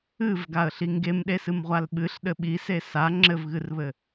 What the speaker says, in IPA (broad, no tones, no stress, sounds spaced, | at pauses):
ɨ v ɡ a ə̯ ɬ i ŋ ɡ e m ɗ e s ɨ m ʁʷ a l ɓ ɨ ɬ ɗ ɘ ɓ i s e s a ŋ͡ǁ ɘ v ɣ ɨ r β ɘ